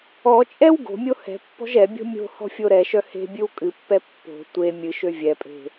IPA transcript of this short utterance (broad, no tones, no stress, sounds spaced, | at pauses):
ɔ t͡ʃʼ ɛ w ɡ o̤ mʲ o h ɛ̤ pː ɔ̤ ʒ ɛ bʲ o̤ mʲ o̤ h ɔ̤ fʲ o ɾ ɛ ʃ œ h e̤ bʲ ɨ w kʼ ɨ pː ɛ pː o̤ tʷ e mʲ ɨ ʃ ø vʲ ɛ pʼ e̤